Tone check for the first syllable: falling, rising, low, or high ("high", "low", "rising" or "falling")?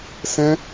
high